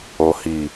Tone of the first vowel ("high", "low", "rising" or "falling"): low